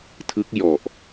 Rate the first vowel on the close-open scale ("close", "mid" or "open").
close